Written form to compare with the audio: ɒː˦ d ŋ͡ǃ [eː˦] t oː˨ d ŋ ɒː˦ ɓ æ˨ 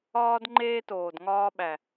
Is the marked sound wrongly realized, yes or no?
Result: no